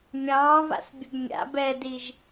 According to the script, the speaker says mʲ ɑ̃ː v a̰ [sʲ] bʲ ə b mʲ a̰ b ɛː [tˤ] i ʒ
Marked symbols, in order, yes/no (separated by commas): no, no